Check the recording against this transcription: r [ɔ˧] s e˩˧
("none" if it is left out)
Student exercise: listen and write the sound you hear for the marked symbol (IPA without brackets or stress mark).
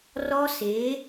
ɔ˧